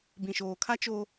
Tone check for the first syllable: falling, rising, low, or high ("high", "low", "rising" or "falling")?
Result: low